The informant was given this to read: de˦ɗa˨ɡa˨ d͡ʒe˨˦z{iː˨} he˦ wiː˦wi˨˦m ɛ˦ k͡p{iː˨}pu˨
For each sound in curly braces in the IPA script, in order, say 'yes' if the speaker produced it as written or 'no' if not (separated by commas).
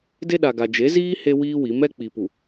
no, no